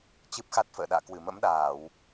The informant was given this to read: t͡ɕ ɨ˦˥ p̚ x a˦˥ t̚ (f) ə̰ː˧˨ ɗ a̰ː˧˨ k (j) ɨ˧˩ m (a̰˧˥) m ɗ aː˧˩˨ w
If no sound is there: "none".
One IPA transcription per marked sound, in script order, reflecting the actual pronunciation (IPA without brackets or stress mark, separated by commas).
f, w, ə̰˧˥